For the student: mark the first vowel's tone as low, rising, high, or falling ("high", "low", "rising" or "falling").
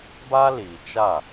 high